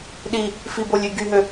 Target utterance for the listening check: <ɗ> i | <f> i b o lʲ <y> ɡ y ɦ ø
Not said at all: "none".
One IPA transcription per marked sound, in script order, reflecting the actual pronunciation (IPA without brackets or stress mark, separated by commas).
ɗ, f, y